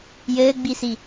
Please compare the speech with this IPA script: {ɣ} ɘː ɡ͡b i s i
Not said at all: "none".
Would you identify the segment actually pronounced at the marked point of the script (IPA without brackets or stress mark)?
j